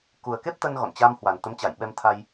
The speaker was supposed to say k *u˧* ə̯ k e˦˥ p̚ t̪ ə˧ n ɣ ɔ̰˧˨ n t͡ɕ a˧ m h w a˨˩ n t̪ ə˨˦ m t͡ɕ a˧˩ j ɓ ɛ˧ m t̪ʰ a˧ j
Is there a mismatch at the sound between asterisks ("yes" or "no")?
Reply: yes